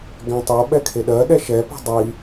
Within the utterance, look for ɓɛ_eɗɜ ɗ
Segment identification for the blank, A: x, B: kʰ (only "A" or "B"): B